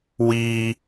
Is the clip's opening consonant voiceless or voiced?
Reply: voiced